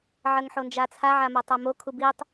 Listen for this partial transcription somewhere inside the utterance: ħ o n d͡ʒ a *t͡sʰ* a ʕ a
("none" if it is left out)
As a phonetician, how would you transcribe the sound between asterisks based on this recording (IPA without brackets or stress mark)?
t͡sʰ